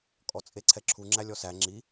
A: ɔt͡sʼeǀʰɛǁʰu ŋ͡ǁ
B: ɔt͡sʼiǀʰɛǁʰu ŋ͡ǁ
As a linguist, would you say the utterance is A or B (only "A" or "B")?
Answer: A